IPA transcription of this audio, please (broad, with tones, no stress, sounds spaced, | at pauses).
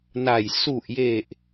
n a˨˩ j s u˨˩ ʔ j e˨˩ ʔ